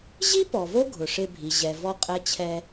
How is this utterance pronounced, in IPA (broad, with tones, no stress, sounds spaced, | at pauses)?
ʑ i˥ p ɔ˩ v o˦ ɡʱ ʊ˩ ʂ ɪ˨ bʱ i˩ ʑ ɛ˩ v ɔ˨ qʼ ɛ˨ t͡ɕʰ ɛ˨